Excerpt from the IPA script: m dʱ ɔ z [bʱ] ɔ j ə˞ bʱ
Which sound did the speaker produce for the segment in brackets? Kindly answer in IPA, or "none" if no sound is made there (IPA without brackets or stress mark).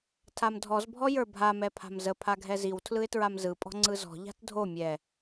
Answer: bʱ